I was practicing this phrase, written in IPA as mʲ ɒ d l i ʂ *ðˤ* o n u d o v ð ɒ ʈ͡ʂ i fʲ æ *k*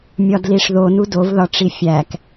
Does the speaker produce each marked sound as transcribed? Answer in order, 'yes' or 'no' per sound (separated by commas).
no, yes